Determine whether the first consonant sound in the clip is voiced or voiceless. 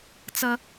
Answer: voiceless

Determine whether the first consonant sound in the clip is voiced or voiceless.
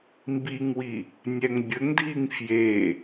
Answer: voiced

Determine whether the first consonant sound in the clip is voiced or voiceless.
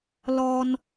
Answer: voiced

